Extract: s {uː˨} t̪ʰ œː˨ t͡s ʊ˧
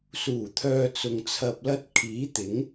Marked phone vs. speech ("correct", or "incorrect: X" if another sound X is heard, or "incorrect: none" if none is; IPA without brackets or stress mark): incorrect: uː˨˩